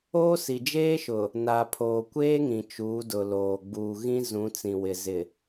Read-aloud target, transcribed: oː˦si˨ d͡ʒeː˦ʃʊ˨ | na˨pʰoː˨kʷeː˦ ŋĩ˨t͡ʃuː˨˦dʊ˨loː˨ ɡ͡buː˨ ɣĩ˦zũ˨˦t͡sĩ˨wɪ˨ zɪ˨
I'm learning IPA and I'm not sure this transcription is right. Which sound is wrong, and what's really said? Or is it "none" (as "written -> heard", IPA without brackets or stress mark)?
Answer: none